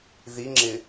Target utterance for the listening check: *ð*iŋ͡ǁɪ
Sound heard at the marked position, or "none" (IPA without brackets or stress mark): ð